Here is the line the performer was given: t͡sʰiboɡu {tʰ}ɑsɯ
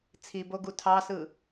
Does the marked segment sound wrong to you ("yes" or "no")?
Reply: no